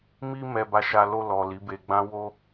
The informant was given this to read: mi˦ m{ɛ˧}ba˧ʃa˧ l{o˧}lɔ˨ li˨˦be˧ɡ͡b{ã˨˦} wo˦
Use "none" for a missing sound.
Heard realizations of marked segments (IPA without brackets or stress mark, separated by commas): ɛ˧, o˧, ã˦